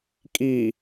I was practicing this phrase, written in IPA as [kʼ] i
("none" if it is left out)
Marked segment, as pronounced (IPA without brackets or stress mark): kʼ